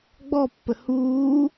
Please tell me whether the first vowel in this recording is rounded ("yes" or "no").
yes